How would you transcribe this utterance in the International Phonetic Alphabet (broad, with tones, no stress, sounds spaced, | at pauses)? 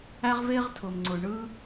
æ˥ ʁ v eː˥ ʁ tʰ ʊː˩ m ŋ͡ǀ ʊː˩ ɳ ɯː˥